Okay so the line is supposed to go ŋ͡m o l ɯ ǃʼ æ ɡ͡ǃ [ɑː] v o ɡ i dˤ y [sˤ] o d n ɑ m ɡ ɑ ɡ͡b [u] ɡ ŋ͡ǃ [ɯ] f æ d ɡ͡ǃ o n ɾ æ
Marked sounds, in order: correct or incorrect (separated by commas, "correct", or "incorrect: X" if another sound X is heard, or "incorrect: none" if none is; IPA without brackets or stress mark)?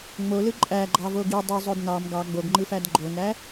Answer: incorrect: ɑ, incorrect: zˤ, incorrect: o, correct